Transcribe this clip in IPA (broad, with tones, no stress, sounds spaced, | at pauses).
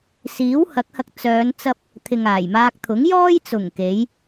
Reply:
s iː˨˥ w h ɐ˨˥ k̚ h ɐ˧ k̚ t͡s œː˨˧ n t͡s ɐ˧ p̚ | t̪ʰ ɪ˨ ŋ aː˨˩ j m aː˧ k̚ t̪ʰ ʊ˨˥ ŋ j ɔː˥ j t͡s ʊ˨˩ ŋ k e˨˥ j